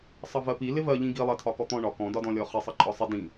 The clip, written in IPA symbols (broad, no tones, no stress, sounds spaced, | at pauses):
sˤ ʌ v ɜ p i l ɪ v ɜ ʎ ĩ ɡ i lˠ ɜ tʰ ɒ k ɔ t̪ ɔ̃ ɳ ɒ k ɔ̃ d ɒ d ɔ̃ lʲ ɔ χ ɪ sˤ ʌ ǃʼ ɒ sˤ ɪ d ĩ